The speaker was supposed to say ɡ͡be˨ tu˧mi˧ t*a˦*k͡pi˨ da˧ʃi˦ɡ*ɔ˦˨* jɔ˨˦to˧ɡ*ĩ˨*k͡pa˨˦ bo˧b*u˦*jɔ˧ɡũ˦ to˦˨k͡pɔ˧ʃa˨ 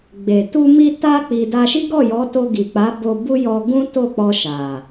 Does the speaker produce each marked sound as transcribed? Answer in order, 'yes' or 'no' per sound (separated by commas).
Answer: no, yes, no, yes